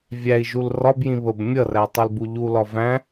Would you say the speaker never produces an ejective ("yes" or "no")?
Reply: yes